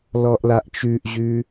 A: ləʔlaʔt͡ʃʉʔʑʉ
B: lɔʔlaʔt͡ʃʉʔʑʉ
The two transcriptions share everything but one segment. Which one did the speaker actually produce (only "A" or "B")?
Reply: B